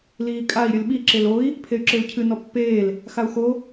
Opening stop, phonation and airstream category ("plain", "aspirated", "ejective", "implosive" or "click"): ejective